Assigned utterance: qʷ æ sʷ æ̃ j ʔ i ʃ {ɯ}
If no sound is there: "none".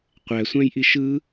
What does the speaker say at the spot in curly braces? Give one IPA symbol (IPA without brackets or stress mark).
ɯ